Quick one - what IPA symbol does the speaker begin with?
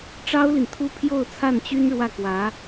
ʈ͡ʂ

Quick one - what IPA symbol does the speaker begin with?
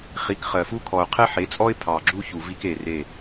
χ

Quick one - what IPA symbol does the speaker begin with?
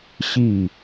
ɕ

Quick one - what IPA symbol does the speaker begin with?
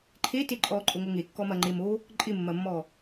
ǃʰ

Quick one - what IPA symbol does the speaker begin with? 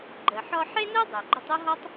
ɡ͡ǃ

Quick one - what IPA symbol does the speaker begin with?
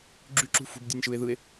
ɡ͡ǁ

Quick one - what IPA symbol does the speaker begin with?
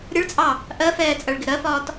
ɾʲ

